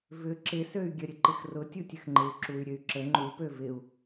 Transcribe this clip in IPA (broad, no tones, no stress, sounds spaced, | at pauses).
v ʏ ǁ ɪ s ø y̯ ɡʲ ə ɾʲ ə ǃ ɪ x r ʊ tʲ u tʲ ə x ŋ͡ǃ ɪ u̯ ǁ u y̯ ɾʲ ø y̯ ǁ ə ŋ͡ǃ u p ø v ɪ u̯